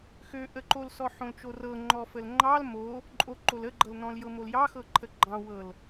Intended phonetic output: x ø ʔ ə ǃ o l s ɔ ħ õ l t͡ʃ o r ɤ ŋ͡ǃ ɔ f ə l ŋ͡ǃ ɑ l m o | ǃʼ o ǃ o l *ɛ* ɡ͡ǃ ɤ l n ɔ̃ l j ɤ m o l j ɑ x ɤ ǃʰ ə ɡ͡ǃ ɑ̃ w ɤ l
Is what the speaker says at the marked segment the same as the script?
no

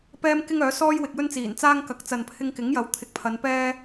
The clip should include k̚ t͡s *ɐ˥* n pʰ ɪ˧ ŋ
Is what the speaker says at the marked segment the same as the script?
no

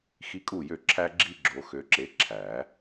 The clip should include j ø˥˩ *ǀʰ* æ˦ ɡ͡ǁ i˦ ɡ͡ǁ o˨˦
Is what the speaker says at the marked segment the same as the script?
no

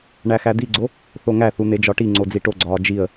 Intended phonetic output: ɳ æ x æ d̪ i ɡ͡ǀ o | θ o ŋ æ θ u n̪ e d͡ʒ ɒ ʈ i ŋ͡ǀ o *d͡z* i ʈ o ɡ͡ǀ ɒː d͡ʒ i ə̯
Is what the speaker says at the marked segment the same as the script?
yes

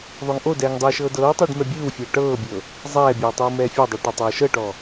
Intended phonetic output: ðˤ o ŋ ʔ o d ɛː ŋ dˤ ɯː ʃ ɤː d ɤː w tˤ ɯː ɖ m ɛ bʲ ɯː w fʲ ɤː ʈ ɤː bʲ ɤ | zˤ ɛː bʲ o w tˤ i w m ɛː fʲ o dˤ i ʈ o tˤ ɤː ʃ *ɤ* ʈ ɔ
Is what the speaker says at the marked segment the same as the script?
yes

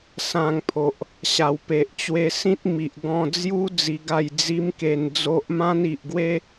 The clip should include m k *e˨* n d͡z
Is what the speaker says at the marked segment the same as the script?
no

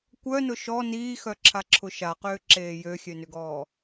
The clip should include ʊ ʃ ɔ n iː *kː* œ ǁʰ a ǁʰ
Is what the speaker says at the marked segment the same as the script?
no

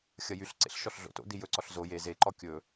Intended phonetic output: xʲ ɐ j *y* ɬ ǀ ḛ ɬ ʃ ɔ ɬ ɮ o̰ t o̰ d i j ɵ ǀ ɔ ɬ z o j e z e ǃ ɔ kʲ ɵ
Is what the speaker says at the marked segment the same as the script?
yes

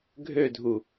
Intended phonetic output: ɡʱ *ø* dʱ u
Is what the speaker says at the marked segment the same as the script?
yes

